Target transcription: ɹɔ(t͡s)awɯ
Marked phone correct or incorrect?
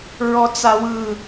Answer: correct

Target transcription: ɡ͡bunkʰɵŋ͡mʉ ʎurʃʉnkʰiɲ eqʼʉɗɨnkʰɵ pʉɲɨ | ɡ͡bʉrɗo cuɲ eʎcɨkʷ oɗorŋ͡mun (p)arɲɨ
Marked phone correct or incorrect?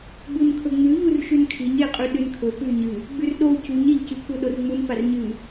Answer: correct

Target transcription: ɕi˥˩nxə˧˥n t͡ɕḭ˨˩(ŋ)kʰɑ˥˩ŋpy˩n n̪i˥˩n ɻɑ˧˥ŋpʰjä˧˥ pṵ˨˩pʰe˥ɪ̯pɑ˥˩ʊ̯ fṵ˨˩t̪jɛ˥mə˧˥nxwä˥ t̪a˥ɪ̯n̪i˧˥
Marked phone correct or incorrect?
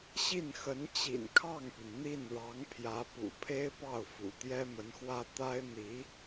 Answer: incorrect: n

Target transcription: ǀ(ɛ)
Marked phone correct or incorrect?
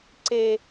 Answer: incorrect: e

